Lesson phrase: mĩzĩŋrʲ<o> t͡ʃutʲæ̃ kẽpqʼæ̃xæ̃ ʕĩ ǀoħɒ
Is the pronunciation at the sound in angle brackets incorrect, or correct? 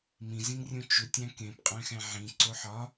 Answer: incorrect